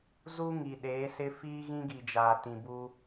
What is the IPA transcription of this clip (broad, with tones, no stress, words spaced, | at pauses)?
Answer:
zu˦ŋi˨ ɗeː˨˦sɪ˦ fiː˦ɣĩ˦ɡi˨d͡ʒaː˨ tĩ˨bu˦